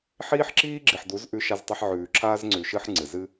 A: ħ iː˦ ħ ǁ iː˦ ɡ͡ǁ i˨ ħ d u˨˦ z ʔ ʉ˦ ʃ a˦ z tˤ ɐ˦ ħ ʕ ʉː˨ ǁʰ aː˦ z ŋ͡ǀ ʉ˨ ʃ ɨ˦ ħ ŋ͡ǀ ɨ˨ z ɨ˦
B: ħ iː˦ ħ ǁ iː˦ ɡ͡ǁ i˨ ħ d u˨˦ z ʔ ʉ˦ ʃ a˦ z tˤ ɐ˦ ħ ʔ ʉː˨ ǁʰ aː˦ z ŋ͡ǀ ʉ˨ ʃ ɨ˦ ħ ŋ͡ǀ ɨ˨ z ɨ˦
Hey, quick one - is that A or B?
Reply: A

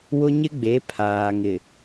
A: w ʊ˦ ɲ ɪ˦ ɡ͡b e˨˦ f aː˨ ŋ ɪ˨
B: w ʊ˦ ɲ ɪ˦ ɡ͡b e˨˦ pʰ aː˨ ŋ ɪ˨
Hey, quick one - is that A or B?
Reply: B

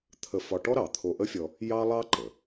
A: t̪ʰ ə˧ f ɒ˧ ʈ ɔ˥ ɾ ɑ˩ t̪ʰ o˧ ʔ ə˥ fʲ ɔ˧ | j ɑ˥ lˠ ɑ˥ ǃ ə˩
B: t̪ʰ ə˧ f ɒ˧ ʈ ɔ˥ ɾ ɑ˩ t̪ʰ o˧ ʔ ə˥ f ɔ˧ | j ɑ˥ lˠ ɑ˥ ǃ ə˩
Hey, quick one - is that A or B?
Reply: A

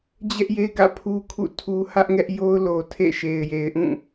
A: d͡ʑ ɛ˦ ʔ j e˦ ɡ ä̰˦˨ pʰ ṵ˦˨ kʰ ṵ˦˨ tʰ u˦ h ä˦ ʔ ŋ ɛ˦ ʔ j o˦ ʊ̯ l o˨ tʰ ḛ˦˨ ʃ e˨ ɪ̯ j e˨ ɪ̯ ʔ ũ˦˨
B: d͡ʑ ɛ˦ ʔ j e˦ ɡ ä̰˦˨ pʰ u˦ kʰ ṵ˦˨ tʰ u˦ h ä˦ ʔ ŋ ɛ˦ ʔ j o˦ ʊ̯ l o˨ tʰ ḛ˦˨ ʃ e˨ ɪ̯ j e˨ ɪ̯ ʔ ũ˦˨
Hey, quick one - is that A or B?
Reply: B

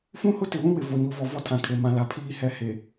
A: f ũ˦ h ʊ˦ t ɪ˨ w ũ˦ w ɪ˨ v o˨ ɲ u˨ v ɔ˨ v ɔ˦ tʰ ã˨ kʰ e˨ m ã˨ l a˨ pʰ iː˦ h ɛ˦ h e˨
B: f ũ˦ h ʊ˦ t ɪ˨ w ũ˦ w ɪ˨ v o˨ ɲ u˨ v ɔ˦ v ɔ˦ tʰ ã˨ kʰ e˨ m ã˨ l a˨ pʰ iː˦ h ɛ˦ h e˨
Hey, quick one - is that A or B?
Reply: A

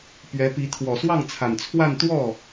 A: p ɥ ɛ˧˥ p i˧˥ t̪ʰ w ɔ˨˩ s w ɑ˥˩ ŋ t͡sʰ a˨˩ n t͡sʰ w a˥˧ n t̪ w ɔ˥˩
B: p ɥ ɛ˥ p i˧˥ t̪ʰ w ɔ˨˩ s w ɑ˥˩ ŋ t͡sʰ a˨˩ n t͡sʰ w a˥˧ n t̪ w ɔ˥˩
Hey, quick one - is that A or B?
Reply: A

